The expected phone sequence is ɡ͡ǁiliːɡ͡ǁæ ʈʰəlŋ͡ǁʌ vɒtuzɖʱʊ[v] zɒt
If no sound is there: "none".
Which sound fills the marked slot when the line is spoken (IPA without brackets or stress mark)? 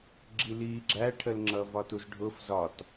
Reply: f